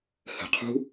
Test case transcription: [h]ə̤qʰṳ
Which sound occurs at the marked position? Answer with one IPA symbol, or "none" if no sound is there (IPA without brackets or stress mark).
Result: h